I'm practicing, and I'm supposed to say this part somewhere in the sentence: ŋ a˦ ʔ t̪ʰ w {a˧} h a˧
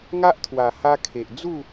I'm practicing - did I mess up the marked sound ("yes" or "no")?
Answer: yes